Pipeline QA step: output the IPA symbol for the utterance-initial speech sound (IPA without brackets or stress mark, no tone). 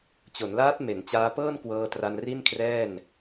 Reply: t͡ɕ